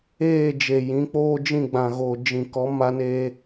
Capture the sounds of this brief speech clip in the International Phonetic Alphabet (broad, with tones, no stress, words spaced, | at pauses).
eː˦˨d͡ʒe˨ jĩ˨˦k͡poː˦ d͡ʒĩ˦˨ɡ͡bã˨ɣo˨ d͡ʒĩ˨kɔ˨˦ ma˦neː˦